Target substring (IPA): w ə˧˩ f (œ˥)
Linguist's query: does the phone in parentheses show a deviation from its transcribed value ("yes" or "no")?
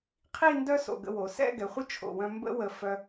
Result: yes